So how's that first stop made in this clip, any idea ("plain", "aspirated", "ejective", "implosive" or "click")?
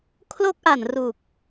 aspirated